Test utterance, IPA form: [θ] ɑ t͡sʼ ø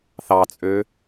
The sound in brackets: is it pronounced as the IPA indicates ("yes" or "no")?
yes